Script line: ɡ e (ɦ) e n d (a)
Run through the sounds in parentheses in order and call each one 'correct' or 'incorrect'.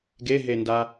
correct, correct

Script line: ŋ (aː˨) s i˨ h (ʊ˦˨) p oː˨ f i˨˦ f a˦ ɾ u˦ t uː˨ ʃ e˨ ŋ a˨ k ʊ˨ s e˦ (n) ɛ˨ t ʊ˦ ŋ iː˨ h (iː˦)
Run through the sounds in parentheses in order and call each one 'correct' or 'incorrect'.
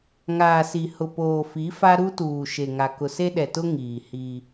correct, incorrect: ʊ˨, incorrect: ɗ, correct

